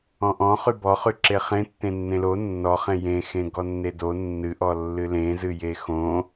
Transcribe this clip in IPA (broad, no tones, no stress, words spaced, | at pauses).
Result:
ɔ̃ʔɔ̃χy bɔχy ǁeχẽ tːẽnːẽlo nːɔχẽ jẽxẽ ɡɔnːedo nːɨʔɔ lːɨlẽzɨje xõ